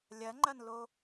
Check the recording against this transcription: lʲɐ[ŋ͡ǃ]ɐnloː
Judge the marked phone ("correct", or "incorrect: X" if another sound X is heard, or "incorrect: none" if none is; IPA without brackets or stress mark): correct